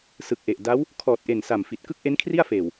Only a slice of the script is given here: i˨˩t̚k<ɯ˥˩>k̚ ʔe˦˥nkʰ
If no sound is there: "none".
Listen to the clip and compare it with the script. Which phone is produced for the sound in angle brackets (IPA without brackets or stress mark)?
ɯ˥˩